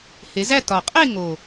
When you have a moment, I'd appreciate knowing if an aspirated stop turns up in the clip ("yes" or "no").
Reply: no